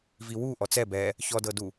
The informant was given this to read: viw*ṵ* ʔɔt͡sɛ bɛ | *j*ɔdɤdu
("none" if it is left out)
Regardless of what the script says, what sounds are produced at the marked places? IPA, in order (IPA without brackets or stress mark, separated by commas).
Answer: u, ç